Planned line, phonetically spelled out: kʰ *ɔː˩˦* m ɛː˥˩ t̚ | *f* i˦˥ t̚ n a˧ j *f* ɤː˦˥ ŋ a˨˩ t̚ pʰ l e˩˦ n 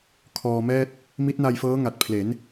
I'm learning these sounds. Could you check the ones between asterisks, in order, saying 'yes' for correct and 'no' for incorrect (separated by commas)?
no, no, yes